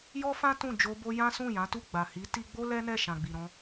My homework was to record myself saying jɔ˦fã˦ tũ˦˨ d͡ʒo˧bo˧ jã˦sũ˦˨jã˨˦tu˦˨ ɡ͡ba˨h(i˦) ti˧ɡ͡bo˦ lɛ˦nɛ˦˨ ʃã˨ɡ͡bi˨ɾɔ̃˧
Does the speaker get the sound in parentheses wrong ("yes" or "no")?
yes